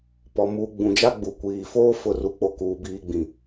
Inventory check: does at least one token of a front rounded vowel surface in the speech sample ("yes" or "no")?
no